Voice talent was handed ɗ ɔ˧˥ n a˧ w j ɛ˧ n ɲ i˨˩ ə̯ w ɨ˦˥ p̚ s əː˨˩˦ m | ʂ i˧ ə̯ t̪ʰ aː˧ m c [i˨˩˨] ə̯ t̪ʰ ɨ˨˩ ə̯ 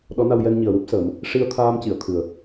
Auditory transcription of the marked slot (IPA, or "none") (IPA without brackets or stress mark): i˨˩˨